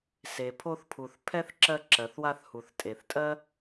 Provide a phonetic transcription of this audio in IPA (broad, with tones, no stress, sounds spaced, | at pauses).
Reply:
s e˩ pʰ o˦ θ pʰ u˩ θ pʰ ɛ˥ θ ǁ ɜ˦ ǁ ɜ˩ θ w a˦ θ h u˩ θ tʼ e˩ θ tʼ ɜ˥